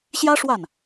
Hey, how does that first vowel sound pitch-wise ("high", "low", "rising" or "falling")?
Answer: high